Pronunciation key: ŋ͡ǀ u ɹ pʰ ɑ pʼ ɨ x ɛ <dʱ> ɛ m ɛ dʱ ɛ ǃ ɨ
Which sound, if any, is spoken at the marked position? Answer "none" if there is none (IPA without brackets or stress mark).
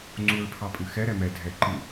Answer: ɾ